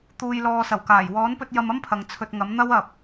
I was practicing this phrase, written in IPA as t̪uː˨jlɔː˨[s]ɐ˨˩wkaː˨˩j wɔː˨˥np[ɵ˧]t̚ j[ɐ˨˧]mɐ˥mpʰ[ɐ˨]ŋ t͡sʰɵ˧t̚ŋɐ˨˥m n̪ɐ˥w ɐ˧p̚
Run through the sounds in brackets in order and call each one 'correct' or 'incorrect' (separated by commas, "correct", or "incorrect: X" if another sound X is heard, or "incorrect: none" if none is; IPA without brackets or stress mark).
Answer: correct, correct, incorrect: ɐ˧, correct